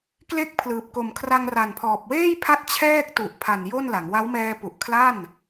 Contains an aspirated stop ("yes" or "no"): yes